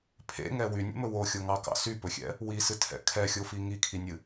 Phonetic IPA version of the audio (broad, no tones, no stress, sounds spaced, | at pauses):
pʰ ḛ ŋ ɛ w y nʲ ḛ m ɵ w o xʲ o ŋ ɑ k ɑ̰ s y p ɵ xʲ ɛ̰ | w i s ɨ tʰ ɛ̰ kʰ ɛ xʲ o f i ŋ i kʰ i nʲ ɨ